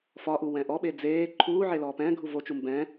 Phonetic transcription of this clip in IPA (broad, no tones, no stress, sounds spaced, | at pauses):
f ɒ ʔ u w ɛ̃ ʔ ɔ ɓ e d͡z eː ǃʰ uː ʕ e l ɔː p ɛ̃ː ɡʱ u v o t͡ʃ u m b ɛ̃